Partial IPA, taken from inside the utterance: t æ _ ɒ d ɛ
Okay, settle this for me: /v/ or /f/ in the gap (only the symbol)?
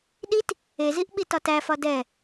f